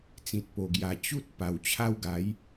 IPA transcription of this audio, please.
t͡s ĩ˨ t̚ p o˨˩ ɡ j a˨˩ t͡ɕ u˦ t̚ p a˨˩ w t͡ɕʰ a˦ w ɡ a˨˦ j

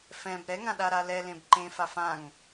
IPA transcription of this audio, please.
f ɛ̃ b ɾ ɛ ŋ ã ɗ a ɾ a l ɛ l ẽ b ǃ ẽ f a f ã ŋ

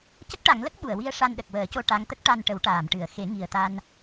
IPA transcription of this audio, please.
c ə˦˥ k̚ ʈ a˨˩˦ ŋ l ə˦˥ k̚ ɓ u˨˩˨ ə̯ w i˧ ə̯ ʂ a˧ n ɗ ə˨˩ k̚ w əː˨˩˦ c o˧ ʈ a˧˥ ŋ t̪ ə˦˥ k̚ ʈ a˧ n ʈ ə˨˩˦ w ʈ aː˨˩˨ m ʈ ɨ˨˩˦ ə̯ x e˨˩˦ ŋ i˨˩ ə̯ t̪ a˧ n

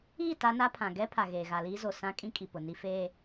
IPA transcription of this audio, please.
iː˦˨ t a˦ n a˦ pʰ ã˨ ɡ ɛ˦ pʰ a˨ ɣ eː˨ ɣ a˨ l iː˦ z o˨ s ã˦ kʼ ĩ˦ kʼ i˨ p ʊ˨ n i˨ f eː˨

